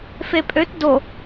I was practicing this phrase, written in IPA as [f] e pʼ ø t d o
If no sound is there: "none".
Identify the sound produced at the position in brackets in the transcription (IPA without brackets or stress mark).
f